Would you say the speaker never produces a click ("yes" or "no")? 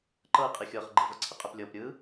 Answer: no